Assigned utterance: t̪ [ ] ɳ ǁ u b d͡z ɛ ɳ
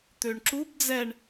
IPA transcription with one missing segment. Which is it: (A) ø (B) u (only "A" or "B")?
A